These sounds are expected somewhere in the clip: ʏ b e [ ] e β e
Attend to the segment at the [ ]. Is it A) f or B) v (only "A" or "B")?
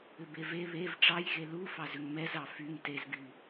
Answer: B